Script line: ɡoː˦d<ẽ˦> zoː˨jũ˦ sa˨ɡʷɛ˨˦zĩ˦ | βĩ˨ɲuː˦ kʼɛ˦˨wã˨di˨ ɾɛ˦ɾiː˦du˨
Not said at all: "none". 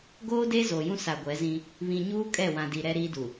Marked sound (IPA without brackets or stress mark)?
e˦